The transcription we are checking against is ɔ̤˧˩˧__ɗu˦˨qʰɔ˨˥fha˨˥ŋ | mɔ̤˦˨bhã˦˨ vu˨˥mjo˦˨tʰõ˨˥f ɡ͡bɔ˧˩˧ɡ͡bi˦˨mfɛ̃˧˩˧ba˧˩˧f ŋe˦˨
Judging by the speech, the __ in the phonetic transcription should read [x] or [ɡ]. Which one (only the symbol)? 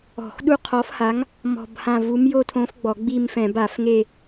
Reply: x